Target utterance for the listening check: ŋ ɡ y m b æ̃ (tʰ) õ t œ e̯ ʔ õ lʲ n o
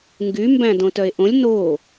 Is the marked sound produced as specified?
no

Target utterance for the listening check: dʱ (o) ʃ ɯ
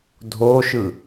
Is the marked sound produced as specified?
yes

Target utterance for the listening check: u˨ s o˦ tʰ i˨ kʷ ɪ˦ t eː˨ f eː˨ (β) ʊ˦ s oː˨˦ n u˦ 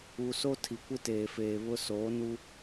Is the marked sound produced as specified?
yes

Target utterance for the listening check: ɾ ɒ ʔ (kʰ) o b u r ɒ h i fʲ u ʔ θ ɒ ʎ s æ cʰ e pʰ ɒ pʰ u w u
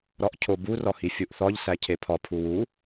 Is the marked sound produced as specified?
no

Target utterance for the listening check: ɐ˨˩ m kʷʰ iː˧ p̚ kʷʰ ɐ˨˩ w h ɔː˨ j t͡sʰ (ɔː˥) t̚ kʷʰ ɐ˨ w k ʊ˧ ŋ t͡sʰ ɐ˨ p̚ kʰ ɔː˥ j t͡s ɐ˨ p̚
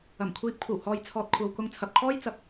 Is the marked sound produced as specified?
no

